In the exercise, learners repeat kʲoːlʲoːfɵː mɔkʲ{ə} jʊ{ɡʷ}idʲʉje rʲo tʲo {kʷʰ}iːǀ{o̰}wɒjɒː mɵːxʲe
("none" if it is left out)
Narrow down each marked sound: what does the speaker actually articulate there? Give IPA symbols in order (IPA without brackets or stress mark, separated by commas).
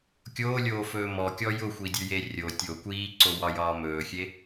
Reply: ɔ, xʷ, kʷ, o